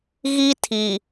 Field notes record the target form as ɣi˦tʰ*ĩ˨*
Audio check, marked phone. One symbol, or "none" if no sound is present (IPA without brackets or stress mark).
i˨